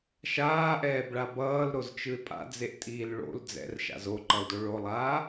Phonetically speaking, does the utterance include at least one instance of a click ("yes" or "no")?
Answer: yes